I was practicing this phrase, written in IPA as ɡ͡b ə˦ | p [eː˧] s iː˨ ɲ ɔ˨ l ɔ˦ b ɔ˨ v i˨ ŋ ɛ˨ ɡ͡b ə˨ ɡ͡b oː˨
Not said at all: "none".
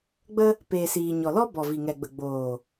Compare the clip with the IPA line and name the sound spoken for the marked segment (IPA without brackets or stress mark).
eː˨